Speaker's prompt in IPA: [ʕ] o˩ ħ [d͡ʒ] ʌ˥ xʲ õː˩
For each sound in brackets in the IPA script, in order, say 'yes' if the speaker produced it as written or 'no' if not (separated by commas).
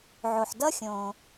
yes, no